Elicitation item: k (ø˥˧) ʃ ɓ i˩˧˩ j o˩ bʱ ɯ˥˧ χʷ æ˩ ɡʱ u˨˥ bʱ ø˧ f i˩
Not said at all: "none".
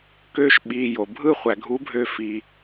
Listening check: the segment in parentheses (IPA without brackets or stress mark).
ø˥˧